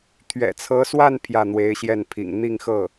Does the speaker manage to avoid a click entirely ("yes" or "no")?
yes